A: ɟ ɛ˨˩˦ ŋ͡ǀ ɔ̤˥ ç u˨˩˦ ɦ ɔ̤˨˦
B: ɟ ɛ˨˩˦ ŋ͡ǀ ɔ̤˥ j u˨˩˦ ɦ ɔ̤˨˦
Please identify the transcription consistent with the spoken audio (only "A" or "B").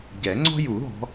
B